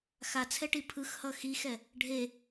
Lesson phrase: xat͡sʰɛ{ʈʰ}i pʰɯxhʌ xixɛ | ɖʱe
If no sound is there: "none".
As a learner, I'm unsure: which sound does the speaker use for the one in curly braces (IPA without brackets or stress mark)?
ʈ